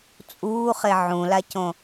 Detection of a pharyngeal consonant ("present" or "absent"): present